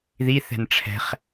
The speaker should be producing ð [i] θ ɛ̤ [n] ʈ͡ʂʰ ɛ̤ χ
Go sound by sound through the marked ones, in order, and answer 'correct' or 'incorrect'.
correct, correct

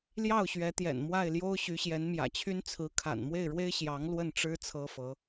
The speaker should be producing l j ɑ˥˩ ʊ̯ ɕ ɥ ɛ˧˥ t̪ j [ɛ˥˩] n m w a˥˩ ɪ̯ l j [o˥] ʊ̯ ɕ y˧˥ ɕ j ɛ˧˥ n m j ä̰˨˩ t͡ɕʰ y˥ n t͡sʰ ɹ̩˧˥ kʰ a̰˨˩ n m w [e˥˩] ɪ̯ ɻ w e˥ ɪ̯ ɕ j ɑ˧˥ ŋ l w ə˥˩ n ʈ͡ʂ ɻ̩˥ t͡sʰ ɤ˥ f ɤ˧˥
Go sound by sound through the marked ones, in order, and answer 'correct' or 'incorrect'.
incorrect: ɛ̰˨˩, correct, correct

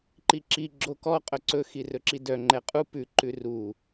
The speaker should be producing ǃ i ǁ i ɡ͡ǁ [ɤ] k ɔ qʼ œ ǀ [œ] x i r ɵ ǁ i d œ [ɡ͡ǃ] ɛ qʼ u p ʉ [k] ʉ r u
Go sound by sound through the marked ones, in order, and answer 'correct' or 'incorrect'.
incorrect: o, incorrect: ɵ, incorrect: ŋ͡ǃ, incorrect: ǃ

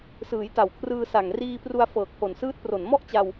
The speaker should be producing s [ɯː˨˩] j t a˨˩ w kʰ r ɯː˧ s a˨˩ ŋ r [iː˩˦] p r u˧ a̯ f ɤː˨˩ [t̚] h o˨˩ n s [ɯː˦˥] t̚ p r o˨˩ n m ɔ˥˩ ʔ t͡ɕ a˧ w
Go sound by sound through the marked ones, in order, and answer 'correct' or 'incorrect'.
incorrect: ɯː˩˦, incorrect: iː˧, incorrect: k̚, correct

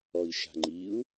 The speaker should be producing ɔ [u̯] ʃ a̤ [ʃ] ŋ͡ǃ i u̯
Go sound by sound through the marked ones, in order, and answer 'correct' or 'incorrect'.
incorrect: i̯, incorrect: none

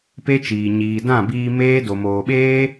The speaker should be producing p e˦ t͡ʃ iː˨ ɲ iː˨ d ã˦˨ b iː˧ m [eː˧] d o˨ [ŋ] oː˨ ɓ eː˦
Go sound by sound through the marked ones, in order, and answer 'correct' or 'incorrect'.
incorrect: eː˦, incorrect: m

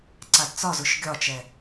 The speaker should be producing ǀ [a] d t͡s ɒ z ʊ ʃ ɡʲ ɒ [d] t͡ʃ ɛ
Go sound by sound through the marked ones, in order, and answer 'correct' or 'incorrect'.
correct, incorrect: none

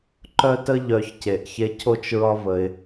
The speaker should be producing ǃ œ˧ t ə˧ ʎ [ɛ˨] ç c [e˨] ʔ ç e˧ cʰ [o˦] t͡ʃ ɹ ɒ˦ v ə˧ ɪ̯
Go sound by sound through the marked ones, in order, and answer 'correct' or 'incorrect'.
incorrect: œ˨, correct, correct

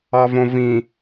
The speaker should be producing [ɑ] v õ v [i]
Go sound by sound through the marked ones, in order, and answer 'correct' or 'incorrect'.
correct, incorrect: ĩ

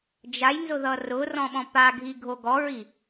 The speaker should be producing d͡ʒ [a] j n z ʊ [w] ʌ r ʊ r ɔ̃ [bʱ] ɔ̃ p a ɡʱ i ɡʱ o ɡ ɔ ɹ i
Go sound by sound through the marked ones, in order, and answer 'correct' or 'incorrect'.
correct, incorrect: ð, incorrect: ɓ

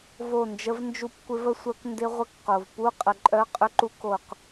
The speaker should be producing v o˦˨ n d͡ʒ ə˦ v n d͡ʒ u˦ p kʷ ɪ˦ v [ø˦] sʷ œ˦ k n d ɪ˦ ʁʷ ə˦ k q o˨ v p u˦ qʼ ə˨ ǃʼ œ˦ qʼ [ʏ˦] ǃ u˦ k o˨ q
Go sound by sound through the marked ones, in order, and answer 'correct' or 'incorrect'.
incorrect: ə˦, correct

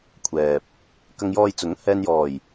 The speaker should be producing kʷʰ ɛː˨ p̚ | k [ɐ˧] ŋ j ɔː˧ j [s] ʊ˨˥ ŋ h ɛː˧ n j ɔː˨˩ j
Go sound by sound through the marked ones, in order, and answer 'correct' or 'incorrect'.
correct, incorrect: t͡s

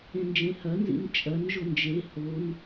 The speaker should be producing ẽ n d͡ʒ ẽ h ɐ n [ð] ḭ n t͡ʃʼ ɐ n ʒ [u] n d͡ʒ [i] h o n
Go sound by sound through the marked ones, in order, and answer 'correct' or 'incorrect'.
incorrect: z, incorrect: o, incorrect: e

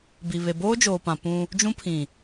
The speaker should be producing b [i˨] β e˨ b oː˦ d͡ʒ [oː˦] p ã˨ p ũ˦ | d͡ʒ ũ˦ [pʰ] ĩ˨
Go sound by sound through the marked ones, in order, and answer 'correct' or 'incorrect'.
correct, incorrect: oː˨, correct

